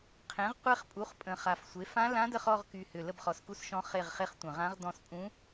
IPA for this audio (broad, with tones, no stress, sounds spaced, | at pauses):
qʰ ẽ˩˥ ʁ qʷ e˦˨ χ pʼ u˩˥ χ pʼ ə̃˨˩ χ a˨˩ f sʷ e˩˥ f ã˧˥ l ã˧˥ d ə˦˨ χ ɔ˦˨ ʁ k y˨˩ h ʏ˨˩ l ə˦˨ b χ ɔ˨˩ s k u˦˨ s ʃ ɔ̃˧˥ χ e˦˨ ʁ χ e˧˥ χ tʷ ə̃˨˩ ʁ ã˧˥ ʁ d ɔ̃˦˨ s pʼ ũ˧˥